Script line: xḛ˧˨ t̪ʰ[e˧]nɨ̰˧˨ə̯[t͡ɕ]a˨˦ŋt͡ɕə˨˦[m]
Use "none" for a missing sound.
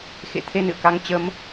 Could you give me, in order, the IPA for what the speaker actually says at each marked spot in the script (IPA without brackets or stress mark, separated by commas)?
e˧, k, m